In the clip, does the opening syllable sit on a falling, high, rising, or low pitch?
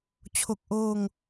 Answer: low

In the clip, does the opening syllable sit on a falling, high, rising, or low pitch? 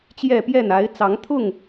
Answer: falling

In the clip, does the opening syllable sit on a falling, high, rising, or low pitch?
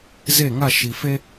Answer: falling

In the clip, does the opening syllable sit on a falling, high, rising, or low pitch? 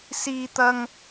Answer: high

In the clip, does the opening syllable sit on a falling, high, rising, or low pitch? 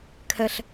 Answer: high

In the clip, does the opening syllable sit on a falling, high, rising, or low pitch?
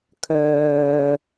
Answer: low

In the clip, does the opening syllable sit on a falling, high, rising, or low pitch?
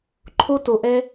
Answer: high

